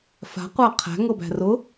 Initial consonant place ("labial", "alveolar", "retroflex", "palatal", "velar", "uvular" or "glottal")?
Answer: labial